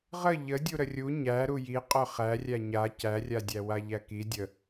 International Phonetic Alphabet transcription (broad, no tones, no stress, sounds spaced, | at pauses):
ʁ ə ʎ ə dʲ u ɾ ə rʲ u ɲ æ ɾ u j i qʼ œ χ æ rʲ æ ɲ a c æ rʲ a dʲ æ w a ʎ æ k i dʲ ə